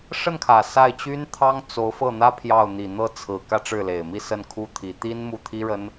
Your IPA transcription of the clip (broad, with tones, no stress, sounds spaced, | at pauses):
ʂ ə˥˩ n kʰ ä˨˩ s a˥˩ ɪ̯ t͡ɕ y˥ n t̪ʰ ɑ˥ ŋ t͡s o˧˥ ʊ̯ f ɤ˥˩ n̪ ä˥ pʰ j ɑ˥˩ ʊ̯ n̪ i˨˩ n̪ ɤ˥˩ t͡sʰ ɹ̩˨˩ k ä˥˧ ʈ͡ʂ ɻ̩˥˩ l e˨˩ ɪ̯ m i˥˧ s ə˥˩ n kʰ u˥ t̪ʰ i˧˥ t̪ i˥ n m u˥˩ t̪ʰ i˥ ɻ ə˥ n